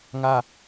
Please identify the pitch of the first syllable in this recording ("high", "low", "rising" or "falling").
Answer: falling